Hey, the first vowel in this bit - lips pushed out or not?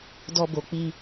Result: yes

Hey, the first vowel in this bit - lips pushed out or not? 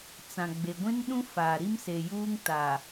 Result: no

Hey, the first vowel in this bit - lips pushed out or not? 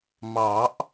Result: no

